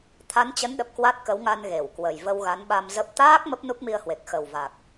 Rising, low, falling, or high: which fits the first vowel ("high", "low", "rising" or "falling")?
rising